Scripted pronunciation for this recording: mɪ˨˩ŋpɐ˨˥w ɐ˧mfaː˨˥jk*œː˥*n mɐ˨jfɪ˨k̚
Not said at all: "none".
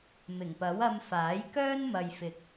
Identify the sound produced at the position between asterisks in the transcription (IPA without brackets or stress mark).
œː˥